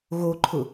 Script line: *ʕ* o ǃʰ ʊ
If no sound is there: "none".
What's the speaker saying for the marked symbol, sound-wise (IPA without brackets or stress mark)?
ɣ